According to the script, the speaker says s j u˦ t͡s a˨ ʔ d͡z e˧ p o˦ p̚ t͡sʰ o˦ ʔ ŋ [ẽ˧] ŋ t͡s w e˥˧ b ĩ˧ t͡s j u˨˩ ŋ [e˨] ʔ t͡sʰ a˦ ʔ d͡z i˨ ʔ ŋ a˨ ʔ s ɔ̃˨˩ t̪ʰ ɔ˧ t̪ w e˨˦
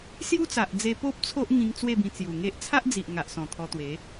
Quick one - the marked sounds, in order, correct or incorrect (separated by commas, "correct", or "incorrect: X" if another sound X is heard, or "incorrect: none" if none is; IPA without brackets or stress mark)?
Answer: incorrect: ĩ˧, incorrect: e˦